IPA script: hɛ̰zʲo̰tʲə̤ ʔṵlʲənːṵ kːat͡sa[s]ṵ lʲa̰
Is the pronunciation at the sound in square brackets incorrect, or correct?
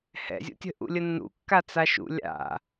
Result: incorrect: ʃ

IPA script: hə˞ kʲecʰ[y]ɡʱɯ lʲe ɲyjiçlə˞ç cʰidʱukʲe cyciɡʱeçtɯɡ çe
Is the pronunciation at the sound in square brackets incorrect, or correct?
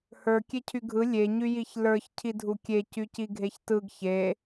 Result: correct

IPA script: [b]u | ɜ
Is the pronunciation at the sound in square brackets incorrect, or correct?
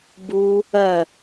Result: correct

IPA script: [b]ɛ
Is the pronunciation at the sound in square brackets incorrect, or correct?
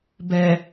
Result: correct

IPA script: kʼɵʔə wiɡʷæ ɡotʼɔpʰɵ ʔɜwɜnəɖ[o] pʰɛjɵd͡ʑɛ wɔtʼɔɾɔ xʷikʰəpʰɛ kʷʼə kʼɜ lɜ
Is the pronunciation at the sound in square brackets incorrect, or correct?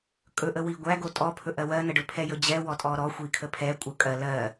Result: incorrect: ɵ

